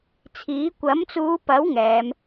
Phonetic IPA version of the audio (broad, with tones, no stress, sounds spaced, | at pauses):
t͡sʰ iː˨˥ kʷ ɐ˨˥ m t͡s uː˨˧ p ɐ˨˥ w ŋ ɛː˨˧ m